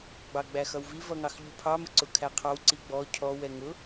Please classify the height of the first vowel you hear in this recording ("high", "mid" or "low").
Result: low